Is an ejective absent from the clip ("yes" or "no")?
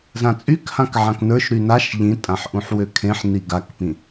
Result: no